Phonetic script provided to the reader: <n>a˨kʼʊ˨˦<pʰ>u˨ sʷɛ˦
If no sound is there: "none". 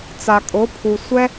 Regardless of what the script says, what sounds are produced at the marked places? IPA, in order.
t͡s, pʰ

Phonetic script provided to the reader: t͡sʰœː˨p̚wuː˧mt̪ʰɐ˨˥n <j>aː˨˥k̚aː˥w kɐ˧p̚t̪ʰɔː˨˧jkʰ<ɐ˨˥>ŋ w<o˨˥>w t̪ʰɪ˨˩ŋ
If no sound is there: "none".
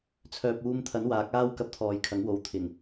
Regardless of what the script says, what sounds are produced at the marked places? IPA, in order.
w, ɐ˨˥, o˨˥

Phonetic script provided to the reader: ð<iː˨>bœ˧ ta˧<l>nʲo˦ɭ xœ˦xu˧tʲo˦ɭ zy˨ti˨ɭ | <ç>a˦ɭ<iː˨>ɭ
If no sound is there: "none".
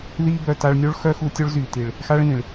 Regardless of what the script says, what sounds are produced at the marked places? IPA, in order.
iː˦, ɭ, x, ĩː˨

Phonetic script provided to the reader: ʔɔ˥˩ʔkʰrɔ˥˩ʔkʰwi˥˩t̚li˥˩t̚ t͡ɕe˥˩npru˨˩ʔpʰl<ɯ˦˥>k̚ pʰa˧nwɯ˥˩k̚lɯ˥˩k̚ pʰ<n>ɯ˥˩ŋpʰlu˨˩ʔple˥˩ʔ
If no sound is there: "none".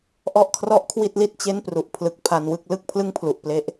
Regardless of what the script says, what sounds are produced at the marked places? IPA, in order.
ɯ˨˩, l

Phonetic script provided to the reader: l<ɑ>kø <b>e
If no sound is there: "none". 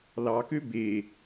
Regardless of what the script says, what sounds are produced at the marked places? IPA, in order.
ɑ, b

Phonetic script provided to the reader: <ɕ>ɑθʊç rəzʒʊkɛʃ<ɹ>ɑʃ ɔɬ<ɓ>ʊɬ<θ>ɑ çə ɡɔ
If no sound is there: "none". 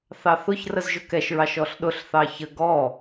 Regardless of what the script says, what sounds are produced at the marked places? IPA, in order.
θ, ɹ, ɗ, θ

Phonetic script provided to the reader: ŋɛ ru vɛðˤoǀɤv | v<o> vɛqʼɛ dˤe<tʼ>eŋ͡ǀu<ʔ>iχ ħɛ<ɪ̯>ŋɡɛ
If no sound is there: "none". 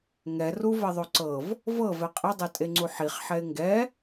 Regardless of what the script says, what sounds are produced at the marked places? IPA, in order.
ɤ, tʼ, ħ, ɪ̯

